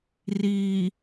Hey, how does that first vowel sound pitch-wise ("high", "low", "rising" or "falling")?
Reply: low